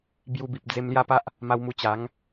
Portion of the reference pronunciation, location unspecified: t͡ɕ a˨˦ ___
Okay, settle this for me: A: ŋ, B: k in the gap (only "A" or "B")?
A